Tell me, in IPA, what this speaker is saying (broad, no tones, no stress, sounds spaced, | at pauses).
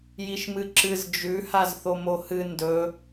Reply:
j i ʃ m ɨ ǁ ɨ z d͡ʒ ʉ h a z θ o m o h ɨ n d ɵ